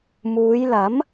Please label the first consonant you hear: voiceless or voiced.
voiced